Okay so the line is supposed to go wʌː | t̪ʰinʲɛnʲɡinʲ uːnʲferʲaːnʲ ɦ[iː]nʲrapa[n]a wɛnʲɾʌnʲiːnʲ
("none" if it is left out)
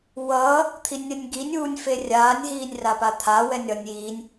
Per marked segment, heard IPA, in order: iː, t̪ʰ

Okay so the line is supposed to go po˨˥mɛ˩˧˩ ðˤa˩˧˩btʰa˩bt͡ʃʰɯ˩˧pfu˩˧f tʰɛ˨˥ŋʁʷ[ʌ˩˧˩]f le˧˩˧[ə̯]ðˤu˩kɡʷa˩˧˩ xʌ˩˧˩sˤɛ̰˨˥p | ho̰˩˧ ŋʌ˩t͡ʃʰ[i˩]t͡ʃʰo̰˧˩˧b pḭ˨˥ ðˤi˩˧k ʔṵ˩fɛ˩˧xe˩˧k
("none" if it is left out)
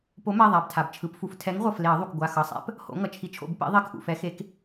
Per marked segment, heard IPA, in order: ʌ˩˧˩, ə̯, i˨˥

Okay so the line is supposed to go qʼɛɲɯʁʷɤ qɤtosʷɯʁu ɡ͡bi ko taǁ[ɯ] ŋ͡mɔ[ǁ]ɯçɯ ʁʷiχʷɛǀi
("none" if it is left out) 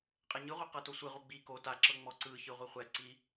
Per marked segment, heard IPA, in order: ɤ, ǀ

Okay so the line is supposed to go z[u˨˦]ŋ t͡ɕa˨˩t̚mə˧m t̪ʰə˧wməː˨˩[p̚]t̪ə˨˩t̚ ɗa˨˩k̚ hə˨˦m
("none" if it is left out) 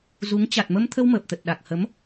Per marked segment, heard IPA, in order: u˨˦, p̚

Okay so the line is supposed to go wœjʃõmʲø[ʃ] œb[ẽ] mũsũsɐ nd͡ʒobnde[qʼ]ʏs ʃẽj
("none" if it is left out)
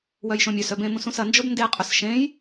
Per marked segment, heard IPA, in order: s, ẽ, qʼ

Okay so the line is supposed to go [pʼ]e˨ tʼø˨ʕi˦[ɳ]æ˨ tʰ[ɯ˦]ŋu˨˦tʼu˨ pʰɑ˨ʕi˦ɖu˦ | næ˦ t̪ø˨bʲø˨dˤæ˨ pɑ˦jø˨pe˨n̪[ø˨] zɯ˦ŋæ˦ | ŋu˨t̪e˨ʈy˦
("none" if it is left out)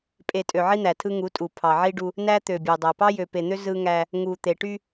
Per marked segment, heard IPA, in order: pʼ, n̪, ɯ˦, ø˦

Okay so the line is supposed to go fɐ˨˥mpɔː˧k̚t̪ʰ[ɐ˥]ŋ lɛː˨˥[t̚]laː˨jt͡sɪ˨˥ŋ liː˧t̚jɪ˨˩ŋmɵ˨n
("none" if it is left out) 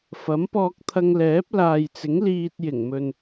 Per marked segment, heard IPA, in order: ɐ˧, p̚

